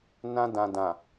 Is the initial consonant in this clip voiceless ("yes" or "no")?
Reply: no